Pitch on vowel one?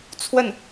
falling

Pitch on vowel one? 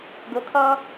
low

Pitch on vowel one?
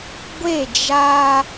falling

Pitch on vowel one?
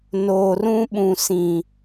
low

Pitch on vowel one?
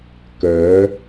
rising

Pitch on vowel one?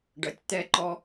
low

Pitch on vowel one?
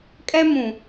high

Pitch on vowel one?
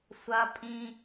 high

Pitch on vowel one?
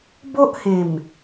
high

